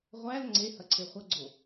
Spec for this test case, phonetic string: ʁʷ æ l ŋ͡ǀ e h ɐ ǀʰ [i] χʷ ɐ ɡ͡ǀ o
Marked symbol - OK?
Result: no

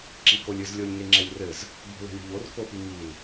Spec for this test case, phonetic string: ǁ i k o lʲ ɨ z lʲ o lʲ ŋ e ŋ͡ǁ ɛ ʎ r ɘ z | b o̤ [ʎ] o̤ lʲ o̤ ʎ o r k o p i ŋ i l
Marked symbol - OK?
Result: no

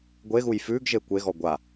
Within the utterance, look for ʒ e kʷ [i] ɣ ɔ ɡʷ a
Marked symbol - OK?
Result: no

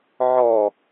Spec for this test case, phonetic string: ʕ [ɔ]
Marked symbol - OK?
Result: yes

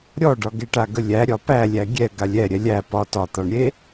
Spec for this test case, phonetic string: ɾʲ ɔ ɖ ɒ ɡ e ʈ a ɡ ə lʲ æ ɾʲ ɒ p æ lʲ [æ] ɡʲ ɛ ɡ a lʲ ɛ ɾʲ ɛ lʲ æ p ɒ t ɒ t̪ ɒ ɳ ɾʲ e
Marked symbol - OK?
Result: yes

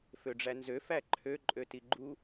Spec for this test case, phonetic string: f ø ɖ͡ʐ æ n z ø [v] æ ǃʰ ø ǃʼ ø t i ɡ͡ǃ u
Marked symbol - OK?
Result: no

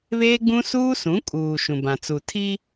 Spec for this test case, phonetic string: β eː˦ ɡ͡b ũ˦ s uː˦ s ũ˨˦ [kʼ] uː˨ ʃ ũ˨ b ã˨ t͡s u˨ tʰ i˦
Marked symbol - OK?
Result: yes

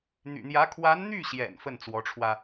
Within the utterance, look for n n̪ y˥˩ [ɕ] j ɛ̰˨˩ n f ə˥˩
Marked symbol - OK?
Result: yes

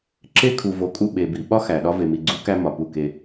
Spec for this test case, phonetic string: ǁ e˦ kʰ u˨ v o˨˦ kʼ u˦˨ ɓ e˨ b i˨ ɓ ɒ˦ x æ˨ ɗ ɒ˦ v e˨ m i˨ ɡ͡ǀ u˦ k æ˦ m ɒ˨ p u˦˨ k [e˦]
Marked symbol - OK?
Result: yes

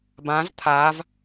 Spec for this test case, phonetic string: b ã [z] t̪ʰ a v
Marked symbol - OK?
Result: yes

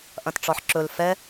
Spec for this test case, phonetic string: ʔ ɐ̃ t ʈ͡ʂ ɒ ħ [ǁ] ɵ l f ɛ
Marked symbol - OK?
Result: yes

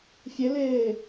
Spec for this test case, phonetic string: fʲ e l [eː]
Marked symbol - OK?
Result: yes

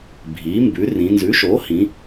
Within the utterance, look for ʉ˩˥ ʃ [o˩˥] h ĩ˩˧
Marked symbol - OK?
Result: yes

